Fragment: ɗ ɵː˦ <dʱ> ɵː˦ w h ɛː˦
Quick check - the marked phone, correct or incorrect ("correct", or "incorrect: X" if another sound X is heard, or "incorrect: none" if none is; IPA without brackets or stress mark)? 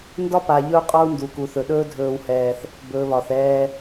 correct